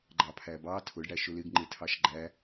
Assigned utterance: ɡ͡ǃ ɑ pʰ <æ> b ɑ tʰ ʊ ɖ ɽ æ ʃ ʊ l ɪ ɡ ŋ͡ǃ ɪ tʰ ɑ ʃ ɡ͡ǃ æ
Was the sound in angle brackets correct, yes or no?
yes